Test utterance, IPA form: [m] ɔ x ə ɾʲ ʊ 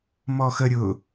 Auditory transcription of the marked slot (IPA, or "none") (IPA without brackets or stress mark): m